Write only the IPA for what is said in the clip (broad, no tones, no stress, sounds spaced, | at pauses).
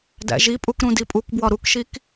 d æ̰ ʒ i pʼ u k ɾ ũ d i pʼ u k b w ɒ ɾ u k ʃ i k